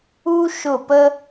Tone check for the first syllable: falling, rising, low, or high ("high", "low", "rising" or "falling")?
high